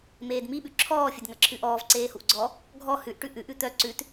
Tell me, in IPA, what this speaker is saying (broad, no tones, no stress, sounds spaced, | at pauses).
m eː d m i ɓ ʉ ǁʰ ɔː fʲ ɵ d ŋ ɐ ǁʰ ʉ ʔ ɔː v ǀ eː h u ʔ ɡ͡ǀ ɔ | ɡʱ ɔ h ʉ ʔ ʈ ʉ ʔ ʉ ʔ ʉ t̪ œ ǀ ʉ t